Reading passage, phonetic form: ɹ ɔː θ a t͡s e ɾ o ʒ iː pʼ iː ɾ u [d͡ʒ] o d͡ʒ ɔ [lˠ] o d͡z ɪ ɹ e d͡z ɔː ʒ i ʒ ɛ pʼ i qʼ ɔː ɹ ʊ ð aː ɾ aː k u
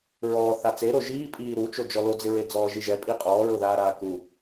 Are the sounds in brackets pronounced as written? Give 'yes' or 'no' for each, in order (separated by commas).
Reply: no, no